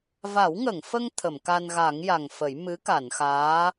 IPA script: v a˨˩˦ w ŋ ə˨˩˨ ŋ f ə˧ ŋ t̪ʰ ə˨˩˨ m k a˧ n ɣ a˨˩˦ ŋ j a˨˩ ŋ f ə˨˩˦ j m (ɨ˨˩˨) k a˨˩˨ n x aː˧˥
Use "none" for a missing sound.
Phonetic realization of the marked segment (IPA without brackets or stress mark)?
ɨ˧˥